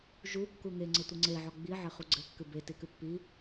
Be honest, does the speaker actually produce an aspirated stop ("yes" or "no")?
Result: no